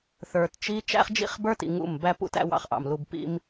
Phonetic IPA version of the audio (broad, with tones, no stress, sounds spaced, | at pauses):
θ ə˞˨ t t͡ʃ i˦ t͡ʃ æ̰˦ χ d͡ʒ ḭ˦ χ b ə˞˦ t ḭ˨ ŋ ṵ˦˨ m b æ˦ p ṵ˦ t æ̰˦ w ɑ̰˦ χ ʔ ɑ̰˨ m l u˦ b p ḭ˦ m